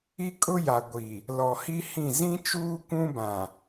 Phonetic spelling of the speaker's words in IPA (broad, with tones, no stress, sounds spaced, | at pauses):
i˦ kʼ ʊ˦ j a˨ ɡʷ i˨ | l ɔ˨ h i˦ h ĩ˦˨ z ĩ˦ t͡ʃ uː˦ kʷ ũ˦ b ã˨